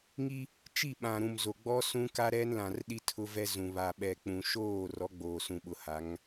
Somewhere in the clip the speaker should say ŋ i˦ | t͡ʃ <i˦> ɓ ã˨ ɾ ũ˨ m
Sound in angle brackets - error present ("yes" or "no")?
yes